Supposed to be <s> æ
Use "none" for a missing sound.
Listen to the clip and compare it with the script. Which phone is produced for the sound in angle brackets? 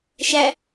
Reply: ʃ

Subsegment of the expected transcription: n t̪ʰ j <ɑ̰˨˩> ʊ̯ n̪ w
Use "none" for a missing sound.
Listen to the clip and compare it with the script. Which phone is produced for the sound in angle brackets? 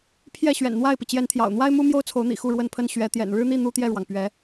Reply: ɑ̰˨˩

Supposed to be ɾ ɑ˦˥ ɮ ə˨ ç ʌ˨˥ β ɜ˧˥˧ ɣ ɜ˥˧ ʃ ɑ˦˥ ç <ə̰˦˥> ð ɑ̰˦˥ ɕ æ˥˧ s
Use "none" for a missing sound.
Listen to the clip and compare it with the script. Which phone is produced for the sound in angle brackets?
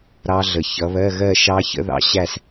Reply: ə̰˦˥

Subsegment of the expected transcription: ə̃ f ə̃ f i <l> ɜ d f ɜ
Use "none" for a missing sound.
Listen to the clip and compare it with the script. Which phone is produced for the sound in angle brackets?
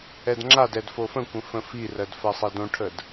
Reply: r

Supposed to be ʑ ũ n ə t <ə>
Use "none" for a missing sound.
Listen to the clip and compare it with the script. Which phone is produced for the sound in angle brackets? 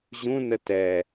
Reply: ɛ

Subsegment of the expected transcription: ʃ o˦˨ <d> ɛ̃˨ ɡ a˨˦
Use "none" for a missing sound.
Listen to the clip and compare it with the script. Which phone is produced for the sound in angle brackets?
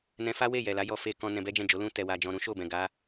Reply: b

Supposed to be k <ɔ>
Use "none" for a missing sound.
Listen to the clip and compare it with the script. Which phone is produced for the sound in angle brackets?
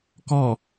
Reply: ɔ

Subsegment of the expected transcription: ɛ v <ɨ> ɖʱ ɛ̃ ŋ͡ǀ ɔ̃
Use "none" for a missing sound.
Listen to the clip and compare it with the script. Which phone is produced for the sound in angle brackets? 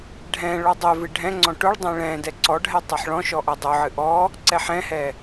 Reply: ɨ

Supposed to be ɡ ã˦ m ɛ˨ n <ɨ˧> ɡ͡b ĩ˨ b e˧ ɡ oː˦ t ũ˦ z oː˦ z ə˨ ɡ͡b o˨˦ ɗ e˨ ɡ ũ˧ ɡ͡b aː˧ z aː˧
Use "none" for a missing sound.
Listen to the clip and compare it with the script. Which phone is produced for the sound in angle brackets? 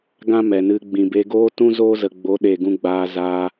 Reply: ɨ˧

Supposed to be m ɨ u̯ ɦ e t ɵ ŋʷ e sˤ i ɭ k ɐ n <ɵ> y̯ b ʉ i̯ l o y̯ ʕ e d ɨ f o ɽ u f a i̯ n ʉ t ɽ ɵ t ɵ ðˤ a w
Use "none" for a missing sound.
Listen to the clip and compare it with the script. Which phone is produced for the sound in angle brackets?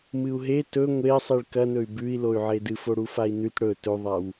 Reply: ɵ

